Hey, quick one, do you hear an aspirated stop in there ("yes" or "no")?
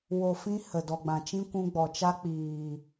no